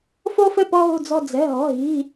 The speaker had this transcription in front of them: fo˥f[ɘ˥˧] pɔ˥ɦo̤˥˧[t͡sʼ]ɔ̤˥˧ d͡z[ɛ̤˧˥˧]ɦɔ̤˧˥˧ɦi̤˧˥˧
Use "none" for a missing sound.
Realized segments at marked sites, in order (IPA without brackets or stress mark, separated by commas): ɘ˥˧, d͡z, ɛ̤˧˥˧